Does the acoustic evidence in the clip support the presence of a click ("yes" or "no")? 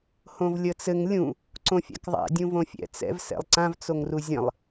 yes